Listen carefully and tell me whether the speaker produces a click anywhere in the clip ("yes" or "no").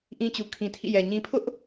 no